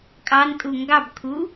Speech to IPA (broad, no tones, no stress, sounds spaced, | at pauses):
kʼ ɑ n tʼ u ŋ ɡ ɑ b kʰ u